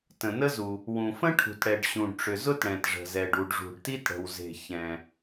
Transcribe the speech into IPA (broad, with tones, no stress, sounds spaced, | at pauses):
t ə̃˩ n ə˥ z u˩ | w ũ˩ f ə̃˥ ʈʰ ṳ˩ t ɽ ɛ˩ ɖ ɕ ũ˩ ɖ ʈ͡ʂ ʏ˩ z ʊ˥ t ɽ ɛ̃˩ t ʐ ə̤˩ z ɛ˩ ɖ u˩ ɖ ʐ ṳ˩ ɖ t i˥ t ɽ ə̤˩ w z e̤˩ ç ɛ̃˩